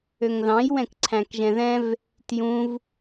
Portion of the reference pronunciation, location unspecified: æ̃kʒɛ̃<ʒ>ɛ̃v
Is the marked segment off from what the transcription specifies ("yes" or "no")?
yes